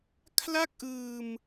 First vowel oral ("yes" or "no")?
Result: yes